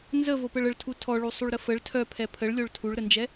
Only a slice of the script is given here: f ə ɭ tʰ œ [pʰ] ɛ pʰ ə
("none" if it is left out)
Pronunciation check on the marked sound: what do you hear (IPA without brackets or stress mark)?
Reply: pʰ